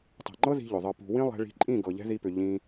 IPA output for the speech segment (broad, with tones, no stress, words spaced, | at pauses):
tˤɛ̤˨ŋ͡ǃɤ˦ði̤˧ ʎʏ˨ðˤɤ˧ pṳ˨ wĩ˦lˠɛ̤˧ɭi̤˧ ǃʼĩ˦˨ ɡɤ˨ʎɛ̤˦ði˧pʏ˨ ʎĩ˧